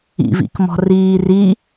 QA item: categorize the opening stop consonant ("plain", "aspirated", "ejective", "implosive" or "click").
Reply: plain